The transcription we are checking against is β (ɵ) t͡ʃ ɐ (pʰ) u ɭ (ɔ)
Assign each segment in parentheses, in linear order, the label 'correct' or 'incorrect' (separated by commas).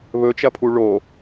correct, correct, incorrect